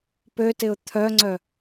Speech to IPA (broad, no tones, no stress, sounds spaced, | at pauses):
p ø t ɪ ʊ̯ t̪ʰ œ ŋ͡ǀ œ